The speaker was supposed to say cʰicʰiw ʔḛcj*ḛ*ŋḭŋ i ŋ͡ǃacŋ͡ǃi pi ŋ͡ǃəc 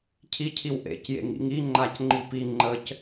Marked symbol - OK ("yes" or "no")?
yes